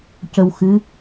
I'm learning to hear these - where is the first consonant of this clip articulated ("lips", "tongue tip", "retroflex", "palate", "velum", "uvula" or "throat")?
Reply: palate